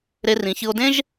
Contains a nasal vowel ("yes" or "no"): yes